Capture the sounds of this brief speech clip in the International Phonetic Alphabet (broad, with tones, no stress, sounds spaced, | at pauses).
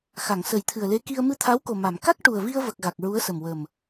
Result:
x a˨˩˨ ŋ s ə˨˩˦ j t̪ʰ ɨ˨˩ ə̯ l e˧˥ k i˧ ə̯ m ɨ˧ t̪ʰ a˧˥ w k o˨˩ m a˨˩˨ m k a˦˥ k̚ ʈ u˨˩ ə̯ v i˧ ə̯ v ə˨˩ k̚ ɣ a˨˩ k̚ ɹ u˧˥ ə̯ s ə˨˩ m w ə˨˩ m